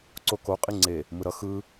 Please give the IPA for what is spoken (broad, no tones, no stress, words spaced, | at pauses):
ǀoko qʼiŋ͡ǀe | mɯɾʌ xɯ